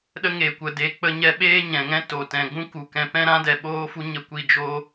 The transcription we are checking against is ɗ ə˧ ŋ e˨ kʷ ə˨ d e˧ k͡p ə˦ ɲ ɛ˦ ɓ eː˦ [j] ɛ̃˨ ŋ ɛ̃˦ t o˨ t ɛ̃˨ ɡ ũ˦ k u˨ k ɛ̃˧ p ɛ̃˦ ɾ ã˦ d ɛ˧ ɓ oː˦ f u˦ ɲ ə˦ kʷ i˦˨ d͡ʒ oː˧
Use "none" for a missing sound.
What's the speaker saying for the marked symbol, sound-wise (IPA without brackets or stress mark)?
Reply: ɲ